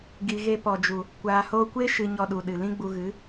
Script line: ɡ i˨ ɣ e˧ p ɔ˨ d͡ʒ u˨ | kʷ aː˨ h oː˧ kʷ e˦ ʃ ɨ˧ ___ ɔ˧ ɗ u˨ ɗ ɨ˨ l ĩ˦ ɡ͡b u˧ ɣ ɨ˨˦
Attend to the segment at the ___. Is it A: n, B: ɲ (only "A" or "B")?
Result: B